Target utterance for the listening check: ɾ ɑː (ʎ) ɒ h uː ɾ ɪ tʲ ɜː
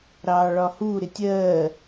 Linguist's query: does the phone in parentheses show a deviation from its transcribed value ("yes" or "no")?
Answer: yes